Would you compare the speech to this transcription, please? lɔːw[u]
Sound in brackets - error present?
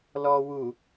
no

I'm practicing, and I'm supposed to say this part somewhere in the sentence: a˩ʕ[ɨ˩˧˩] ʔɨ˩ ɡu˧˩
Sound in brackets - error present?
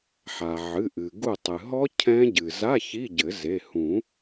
no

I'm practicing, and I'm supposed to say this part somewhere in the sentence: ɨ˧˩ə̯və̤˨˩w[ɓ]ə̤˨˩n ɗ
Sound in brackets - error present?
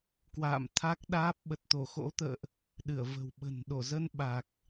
no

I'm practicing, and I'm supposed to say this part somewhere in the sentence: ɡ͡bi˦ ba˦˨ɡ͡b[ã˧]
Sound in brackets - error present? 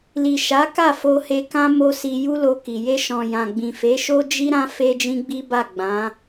yes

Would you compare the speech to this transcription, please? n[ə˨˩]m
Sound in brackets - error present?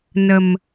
no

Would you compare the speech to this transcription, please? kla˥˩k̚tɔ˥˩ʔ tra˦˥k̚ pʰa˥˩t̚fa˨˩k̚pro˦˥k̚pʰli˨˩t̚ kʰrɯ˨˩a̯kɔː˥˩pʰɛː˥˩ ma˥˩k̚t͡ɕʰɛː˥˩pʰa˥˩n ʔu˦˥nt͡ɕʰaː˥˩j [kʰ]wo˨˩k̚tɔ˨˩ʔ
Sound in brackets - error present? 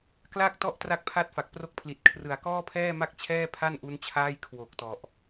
no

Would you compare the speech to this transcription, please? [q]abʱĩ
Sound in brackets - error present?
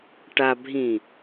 yes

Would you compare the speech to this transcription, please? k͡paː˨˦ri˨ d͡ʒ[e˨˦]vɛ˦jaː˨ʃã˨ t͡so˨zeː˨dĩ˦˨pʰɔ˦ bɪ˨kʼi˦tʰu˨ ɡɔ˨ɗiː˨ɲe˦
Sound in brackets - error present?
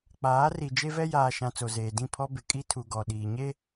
yes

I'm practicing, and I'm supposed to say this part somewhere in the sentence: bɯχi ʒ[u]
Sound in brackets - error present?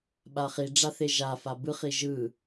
yes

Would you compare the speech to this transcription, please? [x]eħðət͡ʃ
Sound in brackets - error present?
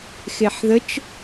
no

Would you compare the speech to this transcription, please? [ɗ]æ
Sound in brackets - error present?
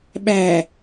yes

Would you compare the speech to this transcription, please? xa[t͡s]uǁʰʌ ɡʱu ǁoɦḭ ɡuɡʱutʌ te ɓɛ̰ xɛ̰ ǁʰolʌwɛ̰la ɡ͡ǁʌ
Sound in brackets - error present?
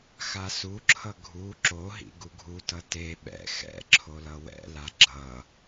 yes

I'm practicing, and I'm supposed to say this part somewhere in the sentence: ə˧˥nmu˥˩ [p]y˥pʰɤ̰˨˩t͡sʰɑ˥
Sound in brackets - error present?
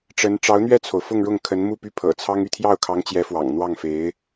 no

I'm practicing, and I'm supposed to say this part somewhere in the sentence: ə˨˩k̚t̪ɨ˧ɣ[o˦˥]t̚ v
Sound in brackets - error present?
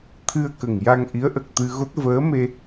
no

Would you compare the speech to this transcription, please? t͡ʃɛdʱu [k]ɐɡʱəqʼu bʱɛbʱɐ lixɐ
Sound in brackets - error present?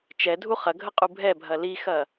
yes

